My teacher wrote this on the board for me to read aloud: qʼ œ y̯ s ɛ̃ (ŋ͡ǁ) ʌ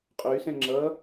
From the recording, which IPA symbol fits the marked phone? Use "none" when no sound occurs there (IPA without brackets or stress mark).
ŋ͡ǁ